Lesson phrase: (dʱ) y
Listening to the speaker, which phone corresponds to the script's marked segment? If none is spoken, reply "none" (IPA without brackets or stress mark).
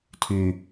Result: tʰ